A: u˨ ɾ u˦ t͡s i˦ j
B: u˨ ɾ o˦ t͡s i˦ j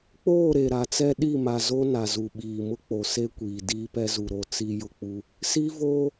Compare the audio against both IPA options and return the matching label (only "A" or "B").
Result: B